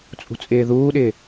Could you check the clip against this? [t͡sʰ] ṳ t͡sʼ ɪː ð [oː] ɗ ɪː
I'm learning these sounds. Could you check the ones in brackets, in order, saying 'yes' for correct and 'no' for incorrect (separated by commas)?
no, no